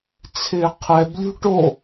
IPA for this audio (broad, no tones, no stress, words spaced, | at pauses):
t͡sʰɪːqʰɛblʲṳ ʈo